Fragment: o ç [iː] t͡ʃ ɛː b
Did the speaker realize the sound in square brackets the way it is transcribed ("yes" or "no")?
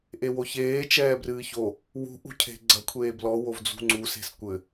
no